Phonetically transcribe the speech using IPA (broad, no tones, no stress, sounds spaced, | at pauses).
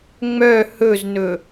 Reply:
ŋ͡m œ h ɵ z n ɵ